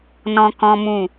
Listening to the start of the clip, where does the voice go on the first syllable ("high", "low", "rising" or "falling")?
high